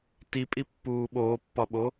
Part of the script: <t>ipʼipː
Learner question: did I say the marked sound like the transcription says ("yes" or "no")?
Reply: yes